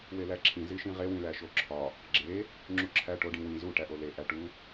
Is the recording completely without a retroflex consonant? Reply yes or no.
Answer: no